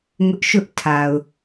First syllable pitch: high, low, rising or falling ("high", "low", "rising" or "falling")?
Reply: high